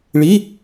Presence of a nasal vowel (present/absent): absent